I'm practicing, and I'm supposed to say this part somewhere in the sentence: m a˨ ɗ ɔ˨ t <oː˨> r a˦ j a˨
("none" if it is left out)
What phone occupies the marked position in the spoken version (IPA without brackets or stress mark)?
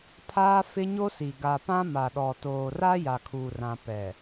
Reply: oː˨